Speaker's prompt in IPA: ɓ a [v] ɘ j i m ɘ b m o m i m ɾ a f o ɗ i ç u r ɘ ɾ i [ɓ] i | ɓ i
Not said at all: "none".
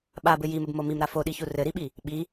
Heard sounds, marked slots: b, ɓ

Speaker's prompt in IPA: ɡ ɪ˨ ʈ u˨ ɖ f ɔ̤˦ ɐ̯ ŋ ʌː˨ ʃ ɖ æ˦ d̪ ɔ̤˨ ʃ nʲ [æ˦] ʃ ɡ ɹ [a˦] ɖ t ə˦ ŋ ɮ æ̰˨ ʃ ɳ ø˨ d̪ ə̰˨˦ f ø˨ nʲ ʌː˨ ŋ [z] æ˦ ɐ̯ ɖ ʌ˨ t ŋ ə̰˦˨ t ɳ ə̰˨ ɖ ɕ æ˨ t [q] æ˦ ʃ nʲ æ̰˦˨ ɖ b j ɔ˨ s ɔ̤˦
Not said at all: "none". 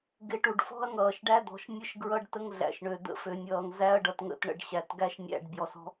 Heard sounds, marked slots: ə˦, ʌ˦, z, ɡ

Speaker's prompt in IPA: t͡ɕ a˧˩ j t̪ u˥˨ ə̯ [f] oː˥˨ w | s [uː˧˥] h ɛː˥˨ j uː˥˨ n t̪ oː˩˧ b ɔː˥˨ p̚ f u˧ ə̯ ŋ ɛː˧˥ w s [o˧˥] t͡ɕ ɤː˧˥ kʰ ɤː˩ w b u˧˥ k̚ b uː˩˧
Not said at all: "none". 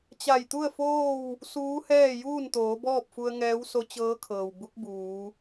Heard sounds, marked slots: f, uː˧˥, o˧˥

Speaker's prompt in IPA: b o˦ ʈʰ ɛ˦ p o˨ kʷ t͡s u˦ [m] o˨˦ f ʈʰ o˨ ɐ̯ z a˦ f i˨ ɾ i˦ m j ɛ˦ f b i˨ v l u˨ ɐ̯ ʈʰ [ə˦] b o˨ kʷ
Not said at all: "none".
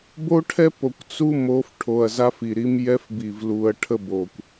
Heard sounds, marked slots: m, ə˦

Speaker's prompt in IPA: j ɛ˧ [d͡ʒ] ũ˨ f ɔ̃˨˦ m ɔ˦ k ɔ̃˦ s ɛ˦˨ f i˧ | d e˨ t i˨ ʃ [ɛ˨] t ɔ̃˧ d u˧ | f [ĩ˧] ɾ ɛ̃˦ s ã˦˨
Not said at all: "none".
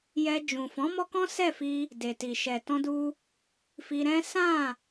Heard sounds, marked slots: d͡ʒ, ɛ˨, i˧

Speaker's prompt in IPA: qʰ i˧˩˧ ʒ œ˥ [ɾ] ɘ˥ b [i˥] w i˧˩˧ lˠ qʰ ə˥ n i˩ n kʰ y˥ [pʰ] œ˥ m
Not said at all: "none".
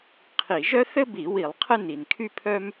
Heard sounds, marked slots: θ, i˧˩˧, pʰ

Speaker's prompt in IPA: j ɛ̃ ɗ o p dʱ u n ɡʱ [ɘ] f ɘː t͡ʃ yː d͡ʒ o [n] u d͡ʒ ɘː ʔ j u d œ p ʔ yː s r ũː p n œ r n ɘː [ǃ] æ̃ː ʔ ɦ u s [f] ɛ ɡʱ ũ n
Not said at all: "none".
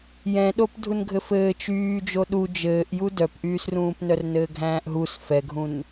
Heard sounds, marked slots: ɘ, ɗ, ɡʱ, f

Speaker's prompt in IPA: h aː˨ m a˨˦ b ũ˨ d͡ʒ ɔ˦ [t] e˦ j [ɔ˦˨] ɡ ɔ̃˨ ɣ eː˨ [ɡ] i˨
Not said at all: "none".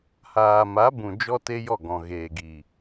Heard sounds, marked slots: t, ɔ˦˨, ɡ

